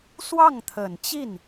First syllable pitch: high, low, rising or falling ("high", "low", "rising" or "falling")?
falling